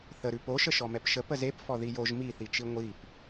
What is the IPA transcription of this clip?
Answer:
θ ə ɾ ʉ p o ʃ ə ʃ ɔ m ɛ p ʃ ə p ə z e p f ɔ ð i j o ʒ m i θ i t͡ʃ i ŋʷ i p

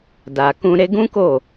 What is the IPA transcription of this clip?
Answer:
d a˨ k ũ˧ ɾ e˧ ɡ ũ˦ k o˦˨

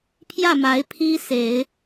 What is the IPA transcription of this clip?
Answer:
pʰ j ä˥˩ m a˧˥ ɪ̯ pʰ i˥ s e˨˩˦ ɪ̯

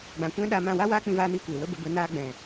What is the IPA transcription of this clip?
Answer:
ɡ͡b ã˨ kʷ ɛ̃˦ ɗ a˧ m ã˦˨ w a˦ w aː˦ k͡p ĩ˧ v aː˧ n iː˧ kʷ eː˨ w ə˦ b ə˨˦ b ə˨˦ n aː˧ ɡ͡b ɛ̃˨

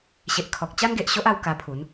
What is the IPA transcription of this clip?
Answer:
ɕ e˨ ʔ kʰ ɔ˨ k̚ t͡ɕ a˦ n ɡ e˨ ʔ ɕ o˦ ʔ a˧ w k a˧ pʰ u˨˦ n

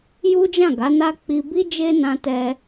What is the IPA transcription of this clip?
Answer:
j u˦ d͡ʒ ã˦˨ ɡ a˨˦ n a˦ k͡p i˧ b i˦ d͡ʒ e˦ n ã˧ t ɛ˧

